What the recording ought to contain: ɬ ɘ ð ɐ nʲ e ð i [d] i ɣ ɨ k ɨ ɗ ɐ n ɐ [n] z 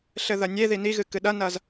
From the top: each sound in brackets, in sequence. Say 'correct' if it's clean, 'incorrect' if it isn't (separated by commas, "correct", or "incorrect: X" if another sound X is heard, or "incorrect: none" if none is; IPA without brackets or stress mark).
incorrect: n, incorrect: none